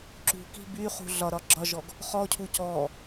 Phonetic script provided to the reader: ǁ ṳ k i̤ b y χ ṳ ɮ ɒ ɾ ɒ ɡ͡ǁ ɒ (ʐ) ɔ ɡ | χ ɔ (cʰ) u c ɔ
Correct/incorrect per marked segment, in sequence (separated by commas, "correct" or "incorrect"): incorrect, correct